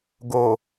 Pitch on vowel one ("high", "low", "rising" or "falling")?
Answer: low